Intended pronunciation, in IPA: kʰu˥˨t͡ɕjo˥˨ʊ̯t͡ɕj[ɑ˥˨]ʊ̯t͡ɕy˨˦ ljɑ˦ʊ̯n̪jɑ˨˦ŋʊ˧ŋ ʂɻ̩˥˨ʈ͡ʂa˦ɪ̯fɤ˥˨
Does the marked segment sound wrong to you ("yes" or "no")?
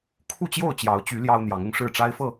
yes